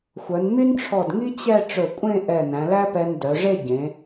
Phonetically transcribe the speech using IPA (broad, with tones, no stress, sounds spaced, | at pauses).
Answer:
xʷ œ˩˧ n m y˥ n ʈ͡ʂʰ ɔ˧˩ d ŋ i˥ t͡ɕ ɛ˥˧ ʈ͡ʂ ɵ˧˩ kʷʼ ẽ˥˧ ʔ ɛ˧˩ n æ̃˩˧ l æ˥ p ɛ˧ n d œ˩˧ ʐ e˥˧ ɟ ẽ˩˧